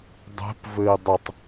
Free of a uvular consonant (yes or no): yes